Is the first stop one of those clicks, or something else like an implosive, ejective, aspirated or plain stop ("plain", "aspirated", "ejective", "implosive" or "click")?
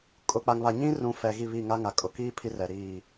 ejective